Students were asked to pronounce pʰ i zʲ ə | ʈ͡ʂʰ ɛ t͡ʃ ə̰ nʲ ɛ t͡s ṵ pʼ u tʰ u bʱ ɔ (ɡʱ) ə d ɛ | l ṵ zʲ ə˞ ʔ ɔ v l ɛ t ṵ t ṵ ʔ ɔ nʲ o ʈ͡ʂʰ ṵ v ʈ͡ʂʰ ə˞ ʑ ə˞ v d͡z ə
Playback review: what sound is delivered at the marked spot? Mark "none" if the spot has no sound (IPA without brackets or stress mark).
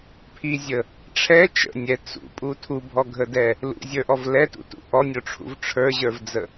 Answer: ɡʱ